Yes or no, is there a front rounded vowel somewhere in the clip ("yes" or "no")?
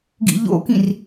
no